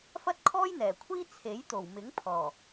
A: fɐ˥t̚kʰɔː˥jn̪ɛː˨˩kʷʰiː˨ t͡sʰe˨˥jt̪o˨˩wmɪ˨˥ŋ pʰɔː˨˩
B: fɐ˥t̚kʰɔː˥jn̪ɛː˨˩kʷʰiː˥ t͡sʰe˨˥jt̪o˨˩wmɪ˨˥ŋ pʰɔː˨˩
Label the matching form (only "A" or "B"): B